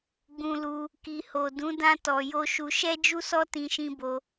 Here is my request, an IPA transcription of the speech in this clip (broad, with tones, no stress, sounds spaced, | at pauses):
ɡ͡b ũ˧ l u˧ | k i˨ h o˨ d ũ˨˦ d ã˧ t ɔ˨ j o˧ ʃ u˧ ʃ ɛ˦ d͡ʒ u˦ s ɔ˦ t ĩ˦ ʃ ĩ˦ b o˧